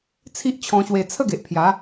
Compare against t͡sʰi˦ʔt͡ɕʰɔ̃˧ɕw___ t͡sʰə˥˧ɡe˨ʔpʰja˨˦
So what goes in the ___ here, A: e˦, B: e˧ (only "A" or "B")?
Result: B